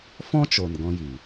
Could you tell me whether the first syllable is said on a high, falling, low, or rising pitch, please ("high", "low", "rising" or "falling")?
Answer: high